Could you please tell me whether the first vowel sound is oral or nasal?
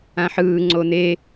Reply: nasal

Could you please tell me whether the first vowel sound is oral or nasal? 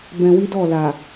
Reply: nasal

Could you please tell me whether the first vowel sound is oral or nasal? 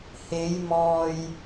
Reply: oral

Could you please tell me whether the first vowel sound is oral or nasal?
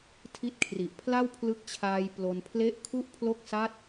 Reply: oral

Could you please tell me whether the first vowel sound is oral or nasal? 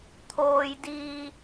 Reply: oral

